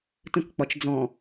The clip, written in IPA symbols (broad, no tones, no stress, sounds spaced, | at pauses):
t ə̃ k k͡p ɒ t͡ʃ d͡z ɔ̃